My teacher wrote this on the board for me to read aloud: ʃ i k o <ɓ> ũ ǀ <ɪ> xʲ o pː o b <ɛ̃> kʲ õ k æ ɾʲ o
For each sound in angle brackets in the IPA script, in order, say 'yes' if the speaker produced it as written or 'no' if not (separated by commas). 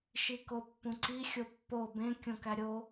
no, no, no